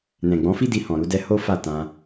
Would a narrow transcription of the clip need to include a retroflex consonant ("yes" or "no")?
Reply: no